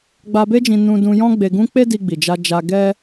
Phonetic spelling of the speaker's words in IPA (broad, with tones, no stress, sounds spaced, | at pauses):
ɡ͡b a˧ b e˦ d͡ʒ ĩ˧ n ũ˧ d ũ˧ j ɔ̃˦ ɡ͡b e˧ ɡ ũ˦ k͡p e˦ d i˧ ɡ͡b i˨ d͡ʒ a˧ d͡ʒ a˧ ɡ ɛ˦